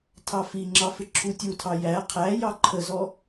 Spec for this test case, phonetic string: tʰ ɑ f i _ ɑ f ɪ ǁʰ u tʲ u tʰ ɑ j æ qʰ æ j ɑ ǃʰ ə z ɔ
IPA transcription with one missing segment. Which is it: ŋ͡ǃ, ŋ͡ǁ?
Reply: ŋ͡ǁ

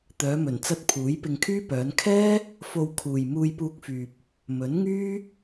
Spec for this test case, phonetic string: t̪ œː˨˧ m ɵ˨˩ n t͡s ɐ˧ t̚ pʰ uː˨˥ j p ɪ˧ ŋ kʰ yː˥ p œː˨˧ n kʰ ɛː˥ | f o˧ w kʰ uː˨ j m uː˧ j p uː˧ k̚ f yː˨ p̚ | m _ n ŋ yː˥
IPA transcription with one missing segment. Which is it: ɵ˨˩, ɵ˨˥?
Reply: ɵ˨˥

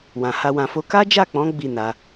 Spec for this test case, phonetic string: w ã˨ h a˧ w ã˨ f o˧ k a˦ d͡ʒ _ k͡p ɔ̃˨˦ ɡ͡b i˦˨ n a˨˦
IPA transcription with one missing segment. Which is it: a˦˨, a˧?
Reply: a˦˨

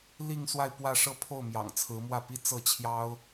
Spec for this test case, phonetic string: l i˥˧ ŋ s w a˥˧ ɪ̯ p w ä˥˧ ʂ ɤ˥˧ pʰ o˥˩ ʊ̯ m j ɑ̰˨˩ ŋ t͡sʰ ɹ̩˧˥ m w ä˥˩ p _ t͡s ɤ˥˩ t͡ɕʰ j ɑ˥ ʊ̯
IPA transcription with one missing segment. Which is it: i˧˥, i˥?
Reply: i˥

